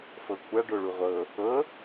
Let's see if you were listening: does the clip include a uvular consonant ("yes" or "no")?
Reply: yes